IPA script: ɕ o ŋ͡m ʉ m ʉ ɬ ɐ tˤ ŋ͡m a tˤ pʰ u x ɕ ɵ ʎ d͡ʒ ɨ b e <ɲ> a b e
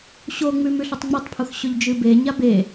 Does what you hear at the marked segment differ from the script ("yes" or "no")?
no